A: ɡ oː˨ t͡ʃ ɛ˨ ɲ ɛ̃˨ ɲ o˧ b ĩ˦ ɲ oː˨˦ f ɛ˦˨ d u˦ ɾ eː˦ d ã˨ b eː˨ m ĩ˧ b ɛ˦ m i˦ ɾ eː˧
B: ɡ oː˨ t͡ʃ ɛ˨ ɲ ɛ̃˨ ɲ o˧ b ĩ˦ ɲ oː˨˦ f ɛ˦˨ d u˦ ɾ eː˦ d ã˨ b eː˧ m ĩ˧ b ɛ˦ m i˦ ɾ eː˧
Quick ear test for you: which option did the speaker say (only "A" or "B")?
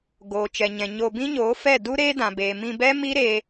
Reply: A